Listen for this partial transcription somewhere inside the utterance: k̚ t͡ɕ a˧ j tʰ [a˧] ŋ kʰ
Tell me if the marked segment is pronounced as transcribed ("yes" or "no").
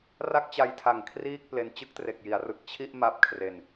no